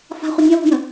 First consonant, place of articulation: labial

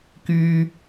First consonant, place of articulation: velar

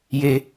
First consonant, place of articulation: palatal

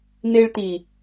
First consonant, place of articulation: alveolar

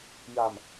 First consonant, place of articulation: palatal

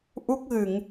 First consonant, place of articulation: glottal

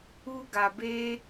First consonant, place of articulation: velar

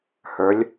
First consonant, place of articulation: glottal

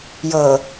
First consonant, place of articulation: palatal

